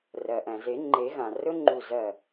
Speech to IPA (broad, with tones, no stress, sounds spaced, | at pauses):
r ɜ˩ ʔ æ̃˩ z e˨˩˦ ŋ͡ǃ e˨˩˦ ɣ ã˩ r ɵ˦˥ ŋ͡ǃ u˧˩ z ɜ˧˩